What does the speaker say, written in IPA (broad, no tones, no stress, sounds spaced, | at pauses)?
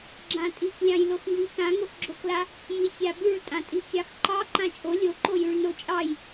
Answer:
ɡ͡ǁ ã tʼ i k lʲ ɑ̃ j l o x ŋ i k ã ŋ o x ɡ͡ǁ o k l a | j i sʲ a b ʉ ɭ tʼ ã tʼ i kʲ ɑ x ǃ ɑ ǃ ã t͡ʃʼ o lʲ o ǃ o j ʉ ɭ n o t͡ʃʼ ɑ j